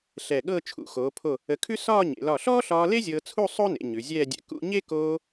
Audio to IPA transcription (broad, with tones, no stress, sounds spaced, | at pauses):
ɬ ɛ˧˩ ɠ ɤ˥˧ t͡ʃʰ ṵ˩˧ x oː˩˧ pʰ o˧˩ | ə˧ kʰ ʉ˥ s ɒː˥˧ ɲ ḛ˩˧ l ɒ˧˩ ɬ ɔː˥ ɬ ɒː˧ l e˥ zʲ ɤː˧ t͡sʰ u˥˧ sˤ o˥ n ḛ˩˧ ɲ ʉ˩˧ zʲ ɛː˥˧ dʲ ɛ̰˧ k ṵ˧ ɲ e˥ k oː˧